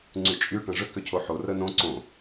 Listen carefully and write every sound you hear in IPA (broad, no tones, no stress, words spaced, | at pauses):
ŋ͡ǀyt͡ʃʼy ʈə̃ʐʏ kʏcʰoħo rənõ ǀõ